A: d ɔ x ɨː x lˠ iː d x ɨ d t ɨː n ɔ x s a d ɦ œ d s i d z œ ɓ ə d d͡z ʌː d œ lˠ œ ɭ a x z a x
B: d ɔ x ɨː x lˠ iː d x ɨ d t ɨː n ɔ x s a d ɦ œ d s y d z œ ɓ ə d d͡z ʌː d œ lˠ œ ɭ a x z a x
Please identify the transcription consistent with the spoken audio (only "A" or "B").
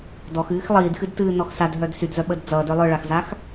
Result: B